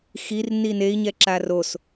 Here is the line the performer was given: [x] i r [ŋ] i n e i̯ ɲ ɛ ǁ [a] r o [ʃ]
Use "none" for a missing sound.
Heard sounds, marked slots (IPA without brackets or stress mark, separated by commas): x, n, a, s